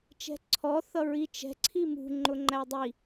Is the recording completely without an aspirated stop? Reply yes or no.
no